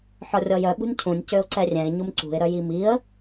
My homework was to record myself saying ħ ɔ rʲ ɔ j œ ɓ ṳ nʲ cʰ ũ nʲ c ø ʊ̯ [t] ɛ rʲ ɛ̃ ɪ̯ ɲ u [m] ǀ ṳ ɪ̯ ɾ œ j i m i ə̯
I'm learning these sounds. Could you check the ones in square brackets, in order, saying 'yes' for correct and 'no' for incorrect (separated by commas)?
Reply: no, yes